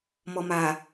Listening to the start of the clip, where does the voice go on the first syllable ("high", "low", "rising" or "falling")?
low